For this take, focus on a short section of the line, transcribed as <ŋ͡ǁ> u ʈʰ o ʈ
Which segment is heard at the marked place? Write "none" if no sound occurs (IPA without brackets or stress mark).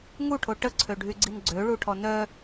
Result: ŋ